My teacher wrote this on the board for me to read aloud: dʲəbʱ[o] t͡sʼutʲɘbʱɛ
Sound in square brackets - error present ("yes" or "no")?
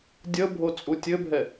no